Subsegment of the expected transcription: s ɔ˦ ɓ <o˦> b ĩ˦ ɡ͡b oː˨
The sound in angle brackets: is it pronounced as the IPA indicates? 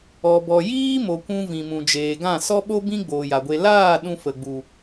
yes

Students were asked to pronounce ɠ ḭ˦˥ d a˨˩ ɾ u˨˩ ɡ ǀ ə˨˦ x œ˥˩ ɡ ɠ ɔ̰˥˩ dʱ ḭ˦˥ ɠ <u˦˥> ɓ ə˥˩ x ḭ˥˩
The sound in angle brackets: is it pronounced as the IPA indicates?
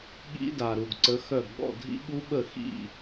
yes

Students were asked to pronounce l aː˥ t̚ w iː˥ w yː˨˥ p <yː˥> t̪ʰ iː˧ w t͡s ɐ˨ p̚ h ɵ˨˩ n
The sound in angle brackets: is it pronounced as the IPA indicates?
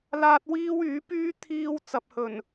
yes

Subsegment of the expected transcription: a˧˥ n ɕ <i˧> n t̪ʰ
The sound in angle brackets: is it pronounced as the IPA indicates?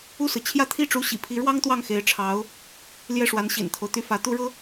no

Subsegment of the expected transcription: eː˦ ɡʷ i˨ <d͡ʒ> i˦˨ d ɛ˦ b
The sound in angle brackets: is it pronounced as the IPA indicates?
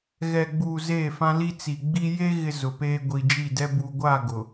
yes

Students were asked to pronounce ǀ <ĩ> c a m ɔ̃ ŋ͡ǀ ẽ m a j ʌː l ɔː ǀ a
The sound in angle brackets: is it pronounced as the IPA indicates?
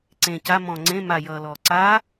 no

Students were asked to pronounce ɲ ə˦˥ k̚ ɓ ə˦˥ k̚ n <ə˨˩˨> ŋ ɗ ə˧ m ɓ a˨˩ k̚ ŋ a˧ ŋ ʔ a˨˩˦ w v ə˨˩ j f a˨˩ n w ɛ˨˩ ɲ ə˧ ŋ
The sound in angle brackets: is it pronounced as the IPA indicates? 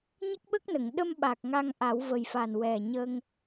yes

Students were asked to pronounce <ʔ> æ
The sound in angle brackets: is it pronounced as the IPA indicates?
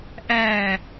yes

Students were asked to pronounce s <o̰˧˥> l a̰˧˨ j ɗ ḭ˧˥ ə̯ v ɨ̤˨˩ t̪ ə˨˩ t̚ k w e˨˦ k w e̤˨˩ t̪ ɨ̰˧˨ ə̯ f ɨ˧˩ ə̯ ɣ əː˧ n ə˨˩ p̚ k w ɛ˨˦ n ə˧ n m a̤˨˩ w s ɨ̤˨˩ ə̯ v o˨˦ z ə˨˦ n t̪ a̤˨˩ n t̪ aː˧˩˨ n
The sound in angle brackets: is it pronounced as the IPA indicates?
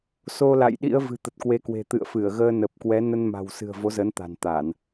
no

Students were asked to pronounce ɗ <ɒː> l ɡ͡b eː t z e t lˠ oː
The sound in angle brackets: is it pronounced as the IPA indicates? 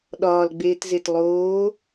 yes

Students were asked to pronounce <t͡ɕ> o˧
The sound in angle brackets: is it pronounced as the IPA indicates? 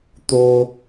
no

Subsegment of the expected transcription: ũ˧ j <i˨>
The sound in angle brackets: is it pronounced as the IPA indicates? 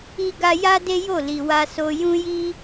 no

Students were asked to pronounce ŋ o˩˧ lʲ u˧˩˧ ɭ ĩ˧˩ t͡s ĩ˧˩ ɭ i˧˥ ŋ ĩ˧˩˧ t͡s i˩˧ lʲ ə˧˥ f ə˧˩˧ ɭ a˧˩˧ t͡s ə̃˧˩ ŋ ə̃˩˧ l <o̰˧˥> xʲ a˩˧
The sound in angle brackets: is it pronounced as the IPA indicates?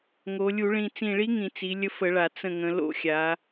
yes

